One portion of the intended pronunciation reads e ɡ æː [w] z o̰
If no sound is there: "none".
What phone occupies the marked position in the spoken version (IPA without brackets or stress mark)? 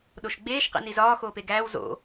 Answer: w